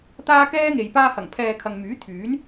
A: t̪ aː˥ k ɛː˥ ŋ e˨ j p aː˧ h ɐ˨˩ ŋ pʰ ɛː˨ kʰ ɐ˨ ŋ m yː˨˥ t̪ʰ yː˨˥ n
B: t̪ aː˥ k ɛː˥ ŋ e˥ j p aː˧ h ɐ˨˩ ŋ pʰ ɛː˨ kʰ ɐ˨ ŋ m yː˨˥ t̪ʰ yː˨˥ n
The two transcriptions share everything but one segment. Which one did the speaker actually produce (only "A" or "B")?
A